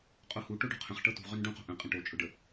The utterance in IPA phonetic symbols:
qʼohu ʈoɖo̤qʰə̃χ ʈɤtṳʁønɖũ qo̤ʔə̃ qʼə̃ʈot͡ʃʼʊɖə

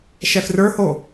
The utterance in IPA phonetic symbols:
ʃɛfrə˞ho

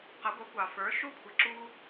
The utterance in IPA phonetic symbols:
qʌ˩˥ɡʷʌ˩˥ kʷɑ˩fə˞˩˥ʃu˥ kʷʰɪ˩˥ǁuː˥

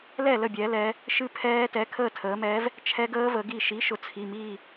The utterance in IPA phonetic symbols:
lɛ˥˨lə˥˨bʲɛː˩˧lɛː˩˧ | ʃɨ˦˥ pʰɛː˦˥ tɛ˩˧˩kʰəː˥˨ tʰəː˩˧mɛː˨˥v | t͡ʃʰɛ˦˥ɡəː˦˥ və˩˧ɡi˥˨ ʃi˨˥ʃʊ˩˧t͡sʰi˩˧˩ miː˥˨

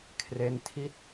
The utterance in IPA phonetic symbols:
kʰre˦˥ntʰi˥˩t̚

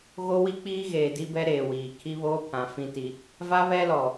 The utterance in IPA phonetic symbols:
ɣo˦wi˦ k͡piː˦ɣeː˨ di˦bɛ˦ ɾeː˨wiː˨ kʰi˦βoː˦pʰã˨ fĩ˦ti˦ | va˦βɛ˦lɔ˨

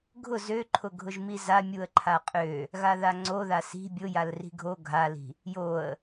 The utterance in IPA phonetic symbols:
ɡʱʊ zøǃʰʊ ɡʱʊʒmiza mʲuə̯ǃʰaqʼø | ɣaðaŋ͡ǀoða si̤ bʲʊjal ri̤ɡʱo ɡʱali̤ | joə̯

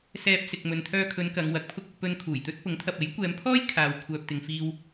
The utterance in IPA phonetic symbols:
sɛː˧p̚ sɪ˨k̚mɵ˨nt̪ʰœː˧kʰɵ˨˧n kɐ˨˧ŋwɐ˨˥k̚pʰʊ˥k̚ ʊ˧k̚pɵ˧n kʰuː˨˩jt̪ɵ˥t̚ pʊ˨˥ŋt̪ʰɐ˨p̚e˨˥j kʷɛː˨˧mpʰɔː˥j kʰaː˨w kʷʰœː˨p̚t̪ɪ˨ŋfiː˧w

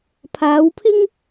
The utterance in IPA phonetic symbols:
pʰaː˨˧wpʰɪ˥ŋ

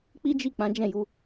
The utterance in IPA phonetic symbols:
k͡pi˦d͡ʒi˦˨ k͡pã˨˦d͡ʒɛ̃˦˨ju˨˦

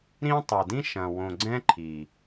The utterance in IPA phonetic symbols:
ɾĩ˦ tˤɤ˨dĩ˦ʃɐ̃˨ wõ˨ɡ͡ǀɛ̃˦ ǃʰi˨

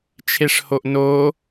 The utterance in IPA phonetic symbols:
t͡ʃʰeʂhoʔnoː

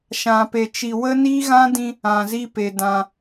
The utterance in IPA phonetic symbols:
ʃã˧pe˧t͡ʃi˧ wə˦ niː˦ɣã˦ dĩ˧ | ã˧zi˦ pe˧ dã˧

